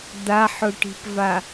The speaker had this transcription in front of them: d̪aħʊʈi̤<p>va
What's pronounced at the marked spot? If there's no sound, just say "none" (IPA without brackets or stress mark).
p